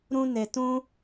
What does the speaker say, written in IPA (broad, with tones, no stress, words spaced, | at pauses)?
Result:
ɾũ˦ne˧tũ˦